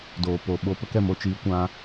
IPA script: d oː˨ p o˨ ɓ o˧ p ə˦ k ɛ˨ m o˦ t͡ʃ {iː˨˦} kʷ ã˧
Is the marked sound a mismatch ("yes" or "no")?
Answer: no